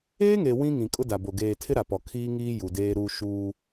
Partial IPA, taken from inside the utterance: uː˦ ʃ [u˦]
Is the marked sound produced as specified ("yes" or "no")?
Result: no